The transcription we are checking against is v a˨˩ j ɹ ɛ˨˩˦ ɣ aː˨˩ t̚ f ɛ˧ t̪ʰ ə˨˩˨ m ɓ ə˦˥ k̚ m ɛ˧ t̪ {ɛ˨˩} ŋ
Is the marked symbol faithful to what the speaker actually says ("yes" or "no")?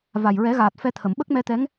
no